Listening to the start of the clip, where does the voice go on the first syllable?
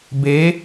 rising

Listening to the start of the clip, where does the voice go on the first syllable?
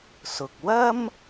low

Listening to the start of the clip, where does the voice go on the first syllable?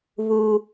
high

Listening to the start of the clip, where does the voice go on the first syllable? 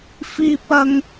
high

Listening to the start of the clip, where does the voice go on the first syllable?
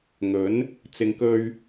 rising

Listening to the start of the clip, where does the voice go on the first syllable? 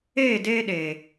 falling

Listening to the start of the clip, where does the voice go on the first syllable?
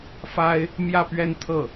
high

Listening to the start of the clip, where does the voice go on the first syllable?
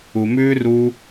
low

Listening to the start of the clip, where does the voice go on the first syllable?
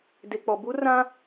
low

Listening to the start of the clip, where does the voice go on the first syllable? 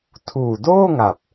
low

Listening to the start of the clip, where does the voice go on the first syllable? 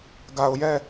low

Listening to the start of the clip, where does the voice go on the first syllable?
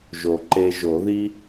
low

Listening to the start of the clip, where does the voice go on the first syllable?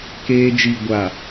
high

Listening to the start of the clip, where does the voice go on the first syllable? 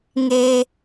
high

